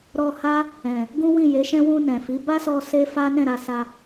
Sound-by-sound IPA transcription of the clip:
ɾ ɔ˧ h a˦ | ɛ̃˨ | ɡ ũ˦ w ĩ˦˨ j e˨˦ ʃ ɛ̃˦ w ũ˧ n ɛ̃˨ f i˨˦ b a˦ s ɔ˧ s e˦ f a˦ n ɛ̃˦˨ ɾ a˧ s a˧

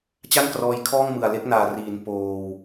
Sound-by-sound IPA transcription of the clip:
t͡ɕ a˥˩ n k r ɔː˧ j kʰ ɔː˥˩ ŋ m ɯ˨˩ a̯ l e˦˥ k̚ n aː˨˩ r iː˩˦ n p oː˧ w

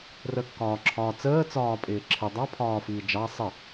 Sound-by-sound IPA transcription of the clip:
r ə kː ɒː ǁʰ ɒː t͡s əː t͡s ɒː pʼ ɪː ǁʰ ɪ dˤ ɑ pʰ ɒː f iː d͡ʒ ɑ sˤ ə

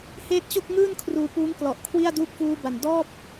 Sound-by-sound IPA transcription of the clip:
h eː˦˥ t̚ t͡ɕ o˥˩ k̚ ŋ ɯː˥˩ n kʰ r uː˧ p uː˦˥ ŋ k l ɔ˨˩ ʔ kʰ w i˥˩ a̯ d uː˥˩ p̚ f uː˦˥ b a˨˩ n d ɔː˥˩ p̚

